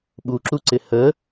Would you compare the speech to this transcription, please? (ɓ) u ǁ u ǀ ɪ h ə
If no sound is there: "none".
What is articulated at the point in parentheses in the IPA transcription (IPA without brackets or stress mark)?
ɓ